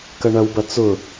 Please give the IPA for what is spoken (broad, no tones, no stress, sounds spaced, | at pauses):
k ɐ ɳ ɐ w b ɐ t͡s ʊ